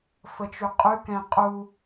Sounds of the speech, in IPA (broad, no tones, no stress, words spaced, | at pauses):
fət͡ʃʉqʼʉ kɛ̃qʼu